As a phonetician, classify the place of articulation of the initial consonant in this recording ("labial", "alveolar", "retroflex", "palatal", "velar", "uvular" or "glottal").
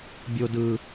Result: labial